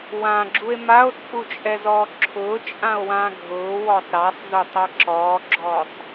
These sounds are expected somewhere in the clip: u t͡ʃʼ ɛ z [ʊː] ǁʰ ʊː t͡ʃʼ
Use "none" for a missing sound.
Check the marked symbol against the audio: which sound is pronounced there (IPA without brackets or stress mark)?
ɔː